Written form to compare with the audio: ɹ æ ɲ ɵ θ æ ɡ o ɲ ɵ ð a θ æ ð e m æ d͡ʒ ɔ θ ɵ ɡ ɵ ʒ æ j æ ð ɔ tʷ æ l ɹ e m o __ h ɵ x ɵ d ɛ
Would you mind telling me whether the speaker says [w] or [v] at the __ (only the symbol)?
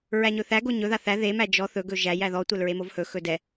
v